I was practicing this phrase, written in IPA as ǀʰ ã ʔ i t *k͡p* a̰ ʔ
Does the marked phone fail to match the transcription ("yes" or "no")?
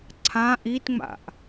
yes